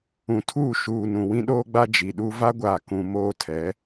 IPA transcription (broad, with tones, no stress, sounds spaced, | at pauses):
ũ˨ tʰ uː˦˨ ʃ uː˨ n ũ˨ w ĩ˦ ɗ oː˦ ɡ͡b a˦ d͡ʒ i˨ ɗ u˦ v a˦ ɡʷ aː˨ k ũ˨ m oː˦ tʰ ɛ˨˦